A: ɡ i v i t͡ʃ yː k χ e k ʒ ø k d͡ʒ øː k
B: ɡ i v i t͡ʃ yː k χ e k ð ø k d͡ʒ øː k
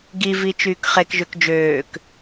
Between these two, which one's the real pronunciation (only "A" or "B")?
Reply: A